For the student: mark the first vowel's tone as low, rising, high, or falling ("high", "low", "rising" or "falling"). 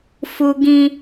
high